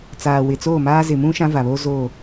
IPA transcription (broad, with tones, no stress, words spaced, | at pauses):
t͡saː˨wɪ˨t͡soː˦˨maː˦ zɪ˨mũ˦ ʃã˦va˨βoː˦ zoː˦˨